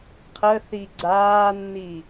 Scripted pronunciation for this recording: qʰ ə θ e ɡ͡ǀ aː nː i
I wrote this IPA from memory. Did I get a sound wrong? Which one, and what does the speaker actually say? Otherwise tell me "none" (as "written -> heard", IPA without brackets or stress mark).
e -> i